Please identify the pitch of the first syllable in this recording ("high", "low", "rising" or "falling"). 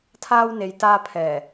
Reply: high